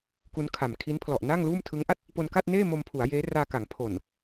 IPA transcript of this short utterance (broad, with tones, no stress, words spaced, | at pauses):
ku˦˥nkʰa˨˩m kʰi˦˥n pʰlɔ˨˩ʔnaː˥˩ŋluː˥˩m tʰɯ˦˥ŋʔa˥˩t̚ | po˧nka˥˩t̚neː˥˩ mo˧mpʰu˩˦a̯ jeː˦˥raː˧ka˩˦ŋ pʰo˨˩n